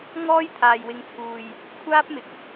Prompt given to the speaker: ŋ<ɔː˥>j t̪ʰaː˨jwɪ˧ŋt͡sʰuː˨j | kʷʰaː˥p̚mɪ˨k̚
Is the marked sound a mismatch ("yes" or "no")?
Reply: no